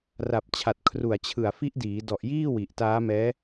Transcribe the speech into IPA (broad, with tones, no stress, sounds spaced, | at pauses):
r a˨˩ p̚ t͡ɕʰ a˨˩ t̚ kʰ r u˨˩ a̯ t͡ɕʰ ɯ˨˩ a̯ f i˦˥ ʔ d iː˩˦ d ɔ˨˩ ʔ j iː˥˩ w i˨˩ ʔ t aː˦˥ m ɛː˦˥